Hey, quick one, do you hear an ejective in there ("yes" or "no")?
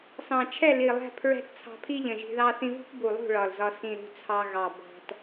no